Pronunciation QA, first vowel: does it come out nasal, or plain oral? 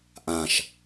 nasal